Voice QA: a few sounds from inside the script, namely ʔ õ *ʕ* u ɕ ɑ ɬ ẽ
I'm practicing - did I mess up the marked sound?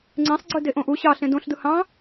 yes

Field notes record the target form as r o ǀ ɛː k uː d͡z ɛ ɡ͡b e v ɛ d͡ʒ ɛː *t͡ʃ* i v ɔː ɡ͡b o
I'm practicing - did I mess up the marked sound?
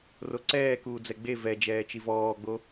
no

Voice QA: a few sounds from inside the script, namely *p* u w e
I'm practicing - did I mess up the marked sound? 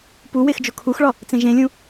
no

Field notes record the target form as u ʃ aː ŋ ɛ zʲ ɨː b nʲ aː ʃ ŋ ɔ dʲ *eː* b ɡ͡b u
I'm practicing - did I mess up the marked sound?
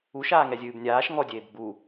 no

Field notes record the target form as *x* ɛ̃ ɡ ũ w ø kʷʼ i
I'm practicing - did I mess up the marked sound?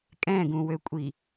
yes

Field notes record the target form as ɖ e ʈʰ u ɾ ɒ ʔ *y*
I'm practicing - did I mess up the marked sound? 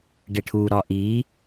yes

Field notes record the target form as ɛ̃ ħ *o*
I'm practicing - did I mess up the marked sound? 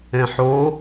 no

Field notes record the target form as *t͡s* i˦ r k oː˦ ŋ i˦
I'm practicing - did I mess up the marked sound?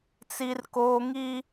no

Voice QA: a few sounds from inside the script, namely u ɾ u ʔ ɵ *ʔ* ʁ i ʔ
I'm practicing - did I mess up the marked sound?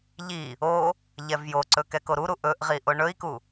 no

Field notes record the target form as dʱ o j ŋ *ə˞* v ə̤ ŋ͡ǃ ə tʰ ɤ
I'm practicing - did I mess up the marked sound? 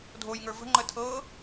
no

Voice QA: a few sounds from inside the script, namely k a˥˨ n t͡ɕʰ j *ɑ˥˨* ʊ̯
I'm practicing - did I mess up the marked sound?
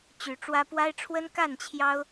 yes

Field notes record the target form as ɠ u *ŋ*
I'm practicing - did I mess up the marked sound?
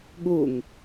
no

